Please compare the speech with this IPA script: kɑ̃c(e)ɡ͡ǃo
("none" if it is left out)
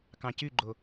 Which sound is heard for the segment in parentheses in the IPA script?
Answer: y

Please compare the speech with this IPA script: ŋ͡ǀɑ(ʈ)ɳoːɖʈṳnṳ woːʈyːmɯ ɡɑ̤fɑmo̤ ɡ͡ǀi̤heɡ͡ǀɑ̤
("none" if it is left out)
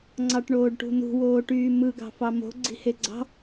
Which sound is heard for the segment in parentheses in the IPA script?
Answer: ʈ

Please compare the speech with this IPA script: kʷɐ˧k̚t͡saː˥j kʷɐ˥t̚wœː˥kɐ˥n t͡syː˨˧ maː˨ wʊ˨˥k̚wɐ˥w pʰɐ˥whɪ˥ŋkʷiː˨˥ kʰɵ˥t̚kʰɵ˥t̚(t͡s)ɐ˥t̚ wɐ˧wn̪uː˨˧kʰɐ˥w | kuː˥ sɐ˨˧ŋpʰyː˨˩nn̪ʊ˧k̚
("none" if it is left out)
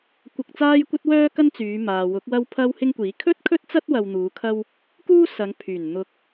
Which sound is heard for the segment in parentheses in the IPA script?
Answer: t͡s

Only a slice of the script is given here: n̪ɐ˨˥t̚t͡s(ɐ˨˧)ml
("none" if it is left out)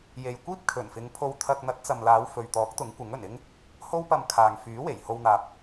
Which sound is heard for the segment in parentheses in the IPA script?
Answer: ɐ˨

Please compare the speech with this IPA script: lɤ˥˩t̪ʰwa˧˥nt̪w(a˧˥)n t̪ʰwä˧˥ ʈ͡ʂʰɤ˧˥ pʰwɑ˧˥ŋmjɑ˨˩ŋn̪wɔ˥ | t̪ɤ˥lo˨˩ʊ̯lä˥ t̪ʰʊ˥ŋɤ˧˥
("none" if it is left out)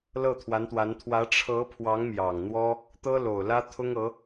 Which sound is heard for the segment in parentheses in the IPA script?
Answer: a˧˥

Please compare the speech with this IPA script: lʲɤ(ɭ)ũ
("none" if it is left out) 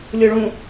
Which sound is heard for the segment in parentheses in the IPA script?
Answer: ɭ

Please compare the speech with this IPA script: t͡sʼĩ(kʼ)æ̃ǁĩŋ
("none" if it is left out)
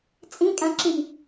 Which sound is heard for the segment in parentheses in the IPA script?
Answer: kʼ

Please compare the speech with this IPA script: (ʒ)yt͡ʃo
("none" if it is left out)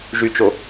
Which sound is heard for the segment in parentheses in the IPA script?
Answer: ʒ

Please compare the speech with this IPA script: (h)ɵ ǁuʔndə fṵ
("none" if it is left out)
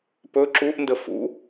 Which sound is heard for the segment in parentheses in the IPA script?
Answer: p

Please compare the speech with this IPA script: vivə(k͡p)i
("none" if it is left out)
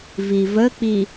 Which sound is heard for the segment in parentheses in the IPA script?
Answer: k͡p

